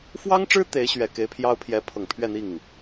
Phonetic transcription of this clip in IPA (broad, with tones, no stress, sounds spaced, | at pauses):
f w ɑ˥ ŋ ʈ͡ʂ ɻ̩˥ t̪ e˧˥ ɪ̯ ɕ ɥ ɛ˨˩ k e˧˥ ɪ̯ pʰ j ɑ˥ ʊ̯ pʰ j ɛ˧˥ pʰ ɤ˨˩ ŋ pʰ ɥ ɛ˥˧ n̪ i˥˩ ŋ